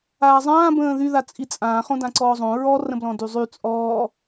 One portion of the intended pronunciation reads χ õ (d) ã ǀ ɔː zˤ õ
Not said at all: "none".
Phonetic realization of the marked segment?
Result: d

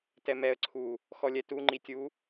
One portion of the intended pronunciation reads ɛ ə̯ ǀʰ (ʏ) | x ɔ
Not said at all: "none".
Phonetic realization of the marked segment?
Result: u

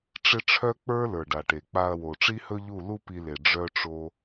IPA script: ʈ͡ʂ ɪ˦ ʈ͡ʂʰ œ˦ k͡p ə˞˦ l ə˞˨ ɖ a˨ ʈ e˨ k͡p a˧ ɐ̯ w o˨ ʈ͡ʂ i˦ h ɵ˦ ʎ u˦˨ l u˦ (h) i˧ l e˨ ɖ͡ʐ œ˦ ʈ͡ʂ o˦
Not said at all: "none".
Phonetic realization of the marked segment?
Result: p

